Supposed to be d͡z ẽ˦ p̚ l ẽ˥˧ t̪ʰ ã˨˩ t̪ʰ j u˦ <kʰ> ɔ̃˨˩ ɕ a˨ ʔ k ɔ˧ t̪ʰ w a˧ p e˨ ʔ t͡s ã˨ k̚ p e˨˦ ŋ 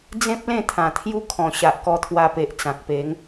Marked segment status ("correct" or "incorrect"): correct